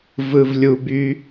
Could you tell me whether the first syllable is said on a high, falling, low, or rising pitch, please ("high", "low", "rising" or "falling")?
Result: low